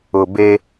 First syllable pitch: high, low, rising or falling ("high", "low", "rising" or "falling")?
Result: low